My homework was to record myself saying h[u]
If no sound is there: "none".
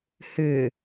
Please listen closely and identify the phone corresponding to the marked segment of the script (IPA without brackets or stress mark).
ʏ